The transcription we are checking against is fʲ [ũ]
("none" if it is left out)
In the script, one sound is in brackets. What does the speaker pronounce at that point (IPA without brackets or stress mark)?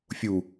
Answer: u